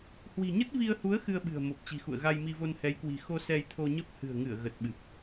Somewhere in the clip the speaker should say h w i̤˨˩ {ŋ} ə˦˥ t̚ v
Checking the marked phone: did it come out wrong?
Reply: yes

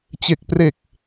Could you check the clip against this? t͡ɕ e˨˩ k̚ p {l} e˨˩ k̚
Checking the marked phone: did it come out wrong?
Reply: yes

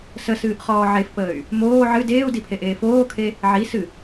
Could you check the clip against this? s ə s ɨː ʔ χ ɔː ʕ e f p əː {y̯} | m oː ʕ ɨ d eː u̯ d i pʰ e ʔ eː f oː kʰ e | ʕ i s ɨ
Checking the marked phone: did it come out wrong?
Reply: no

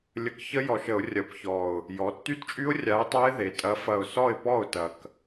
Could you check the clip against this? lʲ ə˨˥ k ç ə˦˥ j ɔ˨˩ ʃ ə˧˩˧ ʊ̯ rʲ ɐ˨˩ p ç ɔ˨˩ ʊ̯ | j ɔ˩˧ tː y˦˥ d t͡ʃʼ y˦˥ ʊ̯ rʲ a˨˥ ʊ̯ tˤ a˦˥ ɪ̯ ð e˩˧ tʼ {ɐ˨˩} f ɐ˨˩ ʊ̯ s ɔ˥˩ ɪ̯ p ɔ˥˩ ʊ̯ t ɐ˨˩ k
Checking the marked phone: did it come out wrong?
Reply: yes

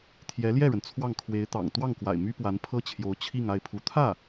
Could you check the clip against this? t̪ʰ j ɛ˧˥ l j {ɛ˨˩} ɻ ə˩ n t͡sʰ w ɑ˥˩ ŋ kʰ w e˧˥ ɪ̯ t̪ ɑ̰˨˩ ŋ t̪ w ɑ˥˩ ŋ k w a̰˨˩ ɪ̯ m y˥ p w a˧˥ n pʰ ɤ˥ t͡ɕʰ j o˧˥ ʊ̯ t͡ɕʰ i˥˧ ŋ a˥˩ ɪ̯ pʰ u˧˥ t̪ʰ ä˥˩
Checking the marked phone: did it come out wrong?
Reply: yes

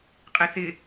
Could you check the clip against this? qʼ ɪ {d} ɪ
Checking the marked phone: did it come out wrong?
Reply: yes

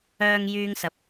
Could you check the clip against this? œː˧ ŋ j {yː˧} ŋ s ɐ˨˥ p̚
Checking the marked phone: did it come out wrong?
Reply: no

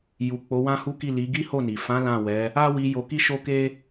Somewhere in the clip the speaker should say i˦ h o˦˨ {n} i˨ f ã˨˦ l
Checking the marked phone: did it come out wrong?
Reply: no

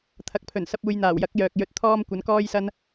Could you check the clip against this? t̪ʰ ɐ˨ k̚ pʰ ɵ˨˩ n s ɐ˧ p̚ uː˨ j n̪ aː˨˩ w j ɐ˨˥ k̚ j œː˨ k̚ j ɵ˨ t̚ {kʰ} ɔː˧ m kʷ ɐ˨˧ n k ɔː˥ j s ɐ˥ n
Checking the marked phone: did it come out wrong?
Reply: yes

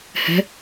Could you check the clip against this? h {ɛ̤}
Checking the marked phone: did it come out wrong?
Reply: no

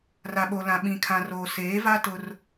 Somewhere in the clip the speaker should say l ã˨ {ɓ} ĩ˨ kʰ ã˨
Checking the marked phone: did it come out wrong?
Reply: no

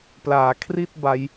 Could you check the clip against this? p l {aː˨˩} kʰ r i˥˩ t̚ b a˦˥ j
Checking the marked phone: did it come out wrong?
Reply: yes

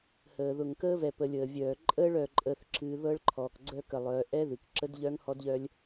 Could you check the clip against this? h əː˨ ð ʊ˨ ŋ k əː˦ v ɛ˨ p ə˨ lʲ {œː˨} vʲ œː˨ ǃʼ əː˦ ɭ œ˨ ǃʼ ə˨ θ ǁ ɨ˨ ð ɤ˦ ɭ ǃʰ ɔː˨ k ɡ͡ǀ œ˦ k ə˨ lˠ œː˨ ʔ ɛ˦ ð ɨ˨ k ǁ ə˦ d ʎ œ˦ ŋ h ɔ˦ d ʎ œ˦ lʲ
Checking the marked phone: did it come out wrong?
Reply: yes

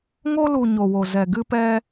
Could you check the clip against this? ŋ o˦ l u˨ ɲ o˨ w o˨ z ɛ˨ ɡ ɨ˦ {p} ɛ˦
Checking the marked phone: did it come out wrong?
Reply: no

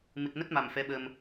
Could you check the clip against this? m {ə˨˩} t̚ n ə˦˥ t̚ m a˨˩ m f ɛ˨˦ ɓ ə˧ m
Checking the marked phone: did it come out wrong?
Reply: yes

